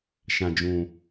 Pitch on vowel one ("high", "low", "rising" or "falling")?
low